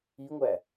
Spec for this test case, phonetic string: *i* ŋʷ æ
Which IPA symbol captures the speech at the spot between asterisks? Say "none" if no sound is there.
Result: i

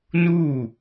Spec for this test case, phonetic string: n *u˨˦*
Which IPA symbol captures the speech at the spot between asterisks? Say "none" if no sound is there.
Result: u˦˨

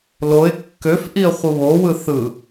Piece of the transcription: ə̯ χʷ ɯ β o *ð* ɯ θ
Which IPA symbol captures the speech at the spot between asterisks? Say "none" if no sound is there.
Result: w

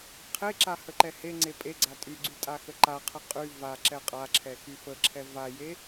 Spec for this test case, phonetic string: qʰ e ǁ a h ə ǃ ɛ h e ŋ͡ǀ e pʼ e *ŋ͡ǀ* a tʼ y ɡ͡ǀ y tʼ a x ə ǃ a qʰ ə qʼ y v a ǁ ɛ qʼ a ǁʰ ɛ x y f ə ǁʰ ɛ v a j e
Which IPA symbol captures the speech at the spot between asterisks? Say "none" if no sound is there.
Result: ɡ͡ǀ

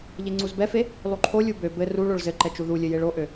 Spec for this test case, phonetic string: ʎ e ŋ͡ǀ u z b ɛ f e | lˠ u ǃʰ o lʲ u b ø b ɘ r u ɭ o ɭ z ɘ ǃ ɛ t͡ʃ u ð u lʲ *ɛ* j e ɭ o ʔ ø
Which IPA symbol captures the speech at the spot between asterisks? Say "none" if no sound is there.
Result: ɘ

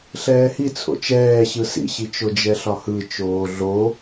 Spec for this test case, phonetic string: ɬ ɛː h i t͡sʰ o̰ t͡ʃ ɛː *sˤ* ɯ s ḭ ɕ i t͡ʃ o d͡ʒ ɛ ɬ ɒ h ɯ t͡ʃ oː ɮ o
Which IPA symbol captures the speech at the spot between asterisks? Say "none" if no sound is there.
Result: ɕ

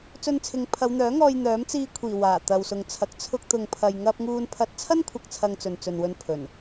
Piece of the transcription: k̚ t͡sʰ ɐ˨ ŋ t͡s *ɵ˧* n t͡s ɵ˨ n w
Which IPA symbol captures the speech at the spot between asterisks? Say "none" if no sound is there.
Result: ɵ˨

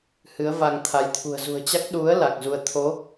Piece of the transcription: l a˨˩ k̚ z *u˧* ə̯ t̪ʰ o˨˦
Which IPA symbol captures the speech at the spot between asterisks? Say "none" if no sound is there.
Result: u˧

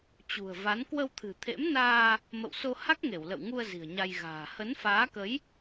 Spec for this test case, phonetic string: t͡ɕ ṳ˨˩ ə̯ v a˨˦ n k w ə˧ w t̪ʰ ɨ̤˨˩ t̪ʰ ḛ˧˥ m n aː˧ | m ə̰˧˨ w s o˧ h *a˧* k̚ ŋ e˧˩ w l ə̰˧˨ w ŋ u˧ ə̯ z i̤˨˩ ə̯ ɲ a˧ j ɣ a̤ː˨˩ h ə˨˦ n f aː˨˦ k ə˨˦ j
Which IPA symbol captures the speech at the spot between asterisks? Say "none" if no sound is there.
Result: a˦˥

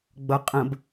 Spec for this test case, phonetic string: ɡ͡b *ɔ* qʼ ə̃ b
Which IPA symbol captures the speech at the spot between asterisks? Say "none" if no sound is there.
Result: ʌ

